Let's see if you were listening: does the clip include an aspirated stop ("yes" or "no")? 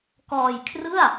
yes